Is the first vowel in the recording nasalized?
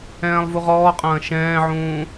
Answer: yes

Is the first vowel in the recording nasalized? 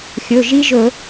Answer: no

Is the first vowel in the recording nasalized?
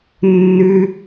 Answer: no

